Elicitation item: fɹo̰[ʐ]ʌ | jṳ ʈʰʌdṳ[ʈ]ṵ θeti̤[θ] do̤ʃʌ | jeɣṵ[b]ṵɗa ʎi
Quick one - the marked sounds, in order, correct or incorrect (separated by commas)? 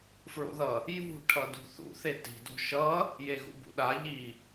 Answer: incorrect, incorrect, incorrect, correct